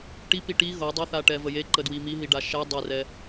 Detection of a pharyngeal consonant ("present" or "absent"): absent